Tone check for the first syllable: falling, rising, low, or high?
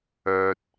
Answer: low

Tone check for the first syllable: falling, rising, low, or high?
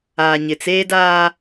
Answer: low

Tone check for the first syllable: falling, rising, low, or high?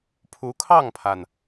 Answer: rising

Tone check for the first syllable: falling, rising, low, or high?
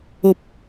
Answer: low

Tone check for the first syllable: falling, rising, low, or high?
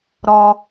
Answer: low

